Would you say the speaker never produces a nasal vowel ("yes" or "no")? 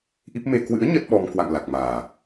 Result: yes